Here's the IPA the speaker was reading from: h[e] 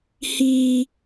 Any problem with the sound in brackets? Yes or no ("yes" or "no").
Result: yes